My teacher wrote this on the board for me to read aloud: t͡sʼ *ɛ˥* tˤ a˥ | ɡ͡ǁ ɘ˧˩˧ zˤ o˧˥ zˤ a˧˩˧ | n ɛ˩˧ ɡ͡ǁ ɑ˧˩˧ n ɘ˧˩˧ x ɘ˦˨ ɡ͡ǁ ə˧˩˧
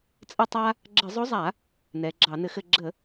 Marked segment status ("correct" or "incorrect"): incorrect